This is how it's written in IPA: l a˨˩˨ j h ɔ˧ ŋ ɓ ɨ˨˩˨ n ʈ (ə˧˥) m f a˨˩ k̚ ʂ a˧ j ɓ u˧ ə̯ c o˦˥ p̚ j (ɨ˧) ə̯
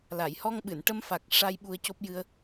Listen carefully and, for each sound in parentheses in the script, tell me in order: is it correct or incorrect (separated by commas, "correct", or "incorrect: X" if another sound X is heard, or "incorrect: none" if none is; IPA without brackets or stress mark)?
incorrect: ə˧, correct